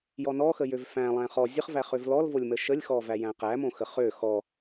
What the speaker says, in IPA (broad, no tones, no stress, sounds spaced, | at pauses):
j ɔ n ɔ x ə j ø v f æ̃ lˠ æ̃ χ ɔ zʲ ə χ v æ χ ø v l ɔ l v o lʲ m ə ʃ ə lʲ x ɔ v æ j æ̃ q æ m õ x ə χ ø x ɔ